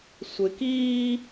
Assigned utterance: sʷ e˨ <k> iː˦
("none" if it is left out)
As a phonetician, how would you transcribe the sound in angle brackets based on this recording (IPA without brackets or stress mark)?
k